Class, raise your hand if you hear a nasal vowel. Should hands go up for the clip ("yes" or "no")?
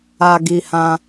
yes